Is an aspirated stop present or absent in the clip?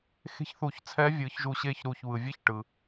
present